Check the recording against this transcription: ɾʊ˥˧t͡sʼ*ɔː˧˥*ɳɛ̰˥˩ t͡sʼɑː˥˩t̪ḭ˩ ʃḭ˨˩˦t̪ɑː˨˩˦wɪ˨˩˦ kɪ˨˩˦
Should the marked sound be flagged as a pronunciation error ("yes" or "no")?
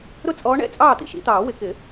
no